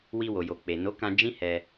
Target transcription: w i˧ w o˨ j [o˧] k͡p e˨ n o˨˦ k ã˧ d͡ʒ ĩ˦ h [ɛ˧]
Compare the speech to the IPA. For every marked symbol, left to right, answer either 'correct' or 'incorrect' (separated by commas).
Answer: incorrect, correct